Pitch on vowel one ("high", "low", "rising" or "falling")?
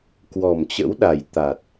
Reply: low